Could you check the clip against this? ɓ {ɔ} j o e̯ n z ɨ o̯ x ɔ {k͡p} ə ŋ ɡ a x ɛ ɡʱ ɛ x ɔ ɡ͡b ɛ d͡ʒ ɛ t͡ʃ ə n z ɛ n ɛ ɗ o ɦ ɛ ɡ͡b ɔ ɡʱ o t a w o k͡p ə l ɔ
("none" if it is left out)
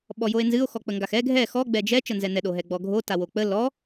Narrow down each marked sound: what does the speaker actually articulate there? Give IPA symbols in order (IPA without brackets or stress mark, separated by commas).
ɔ, k͡p